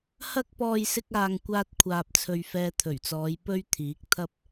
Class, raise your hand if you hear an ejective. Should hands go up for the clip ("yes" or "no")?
no